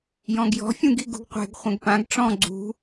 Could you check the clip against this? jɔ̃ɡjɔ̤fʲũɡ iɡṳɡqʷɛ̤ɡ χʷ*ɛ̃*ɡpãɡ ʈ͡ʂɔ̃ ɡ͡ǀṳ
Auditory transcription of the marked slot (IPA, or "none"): ɛ̃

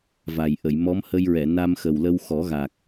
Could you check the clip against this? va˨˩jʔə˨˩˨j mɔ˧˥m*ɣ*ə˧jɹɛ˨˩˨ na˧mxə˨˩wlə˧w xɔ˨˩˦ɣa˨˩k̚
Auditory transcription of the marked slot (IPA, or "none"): h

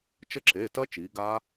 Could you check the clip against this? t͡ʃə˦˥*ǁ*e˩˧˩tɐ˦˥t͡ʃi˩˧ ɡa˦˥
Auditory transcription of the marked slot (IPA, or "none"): ǁ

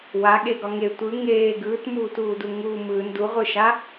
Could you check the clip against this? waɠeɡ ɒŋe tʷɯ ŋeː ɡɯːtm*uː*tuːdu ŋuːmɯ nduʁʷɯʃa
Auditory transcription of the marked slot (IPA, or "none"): uː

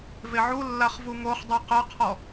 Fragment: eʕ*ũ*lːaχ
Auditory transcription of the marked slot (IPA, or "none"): u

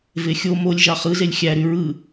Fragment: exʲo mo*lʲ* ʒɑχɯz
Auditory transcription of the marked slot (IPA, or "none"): lʲ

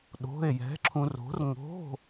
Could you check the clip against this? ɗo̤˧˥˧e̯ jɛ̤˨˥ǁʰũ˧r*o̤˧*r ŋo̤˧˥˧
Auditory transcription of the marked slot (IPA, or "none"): o̤˨˥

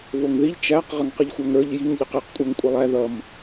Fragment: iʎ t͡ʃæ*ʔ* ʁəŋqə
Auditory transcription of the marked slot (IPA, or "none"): q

